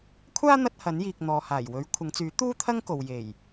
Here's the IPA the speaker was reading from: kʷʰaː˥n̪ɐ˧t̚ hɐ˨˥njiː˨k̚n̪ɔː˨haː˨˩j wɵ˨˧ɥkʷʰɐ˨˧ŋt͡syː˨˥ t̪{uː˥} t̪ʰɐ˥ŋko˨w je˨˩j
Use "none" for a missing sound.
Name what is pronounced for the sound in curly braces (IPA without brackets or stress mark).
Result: uː˥